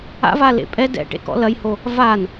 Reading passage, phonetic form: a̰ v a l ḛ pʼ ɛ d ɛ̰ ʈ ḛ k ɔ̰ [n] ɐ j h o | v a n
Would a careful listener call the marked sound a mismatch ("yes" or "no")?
yes